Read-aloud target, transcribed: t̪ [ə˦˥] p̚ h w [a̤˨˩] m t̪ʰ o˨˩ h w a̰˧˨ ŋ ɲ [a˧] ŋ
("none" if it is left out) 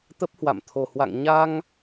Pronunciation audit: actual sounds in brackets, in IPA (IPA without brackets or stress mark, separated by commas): ə˦˥, a̰˧˨, a˧